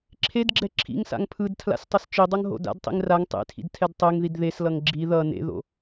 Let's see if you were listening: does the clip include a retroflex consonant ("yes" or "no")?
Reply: no